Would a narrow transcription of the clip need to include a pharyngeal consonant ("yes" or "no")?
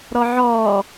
yes